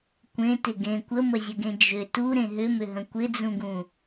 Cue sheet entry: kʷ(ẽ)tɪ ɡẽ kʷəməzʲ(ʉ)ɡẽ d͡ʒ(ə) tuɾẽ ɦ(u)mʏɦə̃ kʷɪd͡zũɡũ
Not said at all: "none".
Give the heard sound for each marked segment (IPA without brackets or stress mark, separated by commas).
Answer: ẽ, ə, ʏ, ʏ